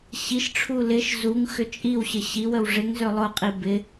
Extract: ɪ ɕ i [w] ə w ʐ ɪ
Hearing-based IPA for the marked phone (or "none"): w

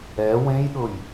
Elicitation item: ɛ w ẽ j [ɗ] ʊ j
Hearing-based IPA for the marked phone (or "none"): ɗ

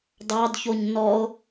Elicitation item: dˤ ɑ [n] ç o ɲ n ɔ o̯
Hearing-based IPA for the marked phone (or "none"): d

